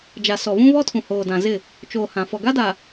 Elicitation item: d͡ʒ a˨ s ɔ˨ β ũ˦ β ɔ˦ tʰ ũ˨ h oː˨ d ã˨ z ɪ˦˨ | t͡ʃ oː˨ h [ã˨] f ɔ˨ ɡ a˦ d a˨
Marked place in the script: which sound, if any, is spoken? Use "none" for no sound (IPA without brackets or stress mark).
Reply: ã˨